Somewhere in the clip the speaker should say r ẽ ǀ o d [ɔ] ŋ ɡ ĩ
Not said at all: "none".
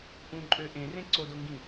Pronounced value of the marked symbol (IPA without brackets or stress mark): o